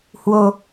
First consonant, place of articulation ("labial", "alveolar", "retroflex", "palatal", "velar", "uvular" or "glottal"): glottal